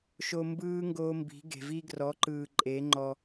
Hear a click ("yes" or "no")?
yes